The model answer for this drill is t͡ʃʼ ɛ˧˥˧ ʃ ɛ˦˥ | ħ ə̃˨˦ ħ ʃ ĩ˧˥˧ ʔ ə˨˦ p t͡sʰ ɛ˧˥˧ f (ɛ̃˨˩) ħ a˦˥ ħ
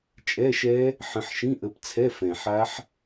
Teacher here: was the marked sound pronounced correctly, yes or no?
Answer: yes